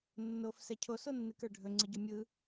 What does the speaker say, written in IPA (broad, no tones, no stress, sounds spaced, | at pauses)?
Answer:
nː o f s ɛ cʰ o s o nː ɨ k ə˞ ɖʱ ɵ ŋ͡ǀ ɨ ɟ ɵ mʲ ɯ